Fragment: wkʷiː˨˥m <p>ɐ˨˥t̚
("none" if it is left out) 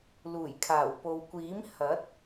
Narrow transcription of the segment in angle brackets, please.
h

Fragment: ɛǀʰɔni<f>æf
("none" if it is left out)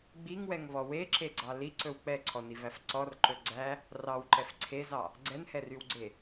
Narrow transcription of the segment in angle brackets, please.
v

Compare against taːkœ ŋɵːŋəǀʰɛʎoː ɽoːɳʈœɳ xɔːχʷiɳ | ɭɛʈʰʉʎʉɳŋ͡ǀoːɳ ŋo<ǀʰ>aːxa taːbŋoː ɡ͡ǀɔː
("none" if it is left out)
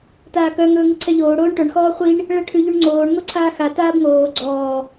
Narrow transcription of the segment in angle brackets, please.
ǀʰ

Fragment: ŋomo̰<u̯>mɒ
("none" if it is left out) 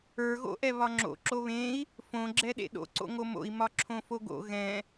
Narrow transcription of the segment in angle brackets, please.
i̯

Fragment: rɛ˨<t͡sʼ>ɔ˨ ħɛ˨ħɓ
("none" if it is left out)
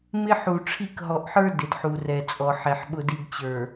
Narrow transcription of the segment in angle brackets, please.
t͡sʼ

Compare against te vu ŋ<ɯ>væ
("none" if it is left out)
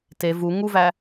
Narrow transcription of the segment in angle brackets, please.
u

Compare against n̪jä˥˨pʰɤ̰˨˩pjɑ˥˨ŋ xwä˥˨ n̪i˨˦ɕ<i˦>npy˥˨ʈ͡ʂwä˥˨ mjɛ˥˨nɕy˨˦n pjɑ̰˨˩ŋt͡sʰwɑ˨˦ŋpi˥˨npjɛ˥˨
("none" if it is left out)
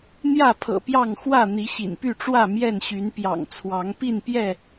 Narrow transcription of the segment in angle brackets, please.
ḭ˨˩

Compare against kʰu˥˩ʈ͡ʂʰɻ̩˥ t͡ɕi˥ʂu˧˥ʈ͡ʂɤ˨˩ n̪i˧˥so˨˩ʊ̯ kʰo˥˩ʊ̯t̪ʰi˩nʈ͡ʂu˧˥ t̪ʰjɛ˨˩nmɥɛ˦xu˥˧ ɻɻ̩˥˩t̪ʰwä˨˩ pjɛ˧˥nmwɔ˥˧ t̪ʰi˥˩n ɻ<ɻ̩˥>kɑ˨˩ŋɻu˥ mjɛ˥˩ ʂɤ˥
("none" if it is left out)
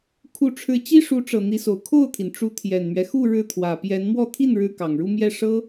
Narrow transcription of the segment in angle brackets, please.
ɻ̩˥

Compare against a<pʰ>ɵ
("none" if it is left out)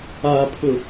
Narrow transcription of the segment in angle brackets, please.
pʰ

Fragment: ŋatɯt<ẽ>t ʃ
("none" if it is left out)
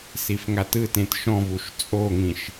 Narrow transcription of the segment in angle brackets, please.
ẽ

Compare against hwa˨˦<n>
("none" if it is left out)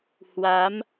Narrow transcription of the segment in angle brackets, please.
m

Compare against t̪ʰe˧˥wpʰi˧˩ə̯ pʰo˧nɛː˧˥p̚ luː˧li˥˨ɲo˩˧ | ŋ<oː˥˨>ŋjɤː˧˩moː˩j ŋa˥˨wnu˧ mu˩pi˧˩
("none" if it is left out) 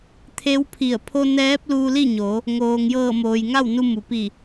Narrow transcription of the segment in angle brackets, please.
oː˩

